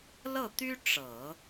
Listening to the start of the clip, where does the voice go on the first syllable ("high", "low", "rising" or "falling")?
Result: falling